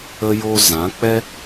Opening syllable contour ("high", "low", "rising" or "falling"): high